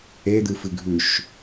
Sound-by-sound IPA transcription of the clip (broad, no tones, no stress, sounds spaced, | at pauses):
e d̪ ɨ f ɨ ɡʱ ʉ ʃ